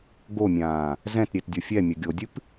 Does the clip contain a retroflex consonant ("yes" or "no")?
no